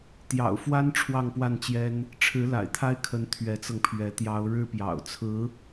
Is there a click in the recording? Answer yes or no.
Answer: no